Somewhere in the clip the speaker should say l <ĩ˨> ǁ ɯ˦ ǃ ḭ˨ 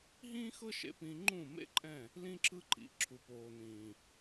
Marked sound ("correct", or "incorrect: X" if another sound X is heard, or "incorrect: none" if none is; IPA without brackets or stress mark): incorrect: ĩ˦